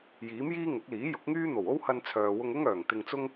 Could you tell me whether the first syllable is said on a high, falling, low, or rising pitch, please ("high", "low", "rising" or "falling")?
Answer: rising